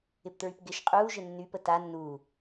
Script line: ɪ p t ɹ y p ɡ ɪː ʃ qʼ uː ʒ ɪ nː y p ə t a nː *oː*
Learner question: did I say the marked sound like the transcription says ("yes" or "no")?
no